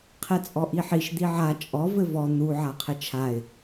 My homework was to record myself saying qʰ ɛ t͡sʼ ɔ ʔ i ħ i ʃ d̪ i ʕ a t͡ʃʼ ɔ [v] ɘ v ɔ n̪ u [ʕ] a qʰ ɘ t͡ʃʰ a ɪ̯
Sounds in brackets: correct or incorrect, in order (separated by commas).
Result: correct, correct